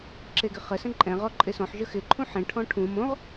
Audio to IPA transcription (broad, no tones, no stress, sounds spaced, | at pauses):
ǁ e ɡ ɪ χ ə s ə̃ ǃʼ ɛ̃ ʁ ɔ ǃʼ ɪ s ɔ̃ ħ ʒ ə x ɪ ǃʰ ũ ħ ẽ ʈʰ ɔ̃ ʈʰ ũ m õ ʁ